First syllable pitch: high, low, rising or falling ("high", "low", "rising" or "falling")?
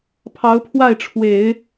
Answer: rising